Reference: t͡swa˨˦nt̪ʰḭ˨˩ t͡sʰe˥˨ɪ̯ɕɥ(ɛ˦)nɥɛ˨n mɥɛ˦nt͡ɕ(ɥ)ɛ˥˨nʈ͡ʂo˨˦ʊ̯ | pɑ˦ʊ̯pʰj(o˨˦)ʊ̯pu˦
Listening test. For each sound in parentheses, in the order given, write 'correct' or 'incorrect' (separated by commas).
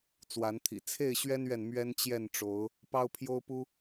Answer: correct, incorrect, incorrect